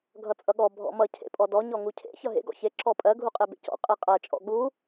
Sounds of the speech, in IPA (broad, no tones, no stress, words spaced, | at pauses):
ɡʱʌt͡sʼʌɠɔ bʱɔ̰mʌ cʰḛpʼɔdɔ ɲɔŋucʰḛ çʌɦḛ ɡɔ̰çe ǁɔpʼɜ ɡʱuqʼebḛcɔ̰ qʼeqʼɜ t͡ʃʼɔ̰ɠu